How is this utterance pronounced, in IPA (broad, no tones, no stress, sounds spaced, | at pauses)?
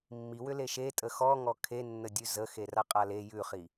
mː i w ʏ l e ʃ e tʼ ə x ɔ ŋ ɔ kʰ e nː ə dʲ ʉ z ə x e r a qʼ a l e j ʉ χ i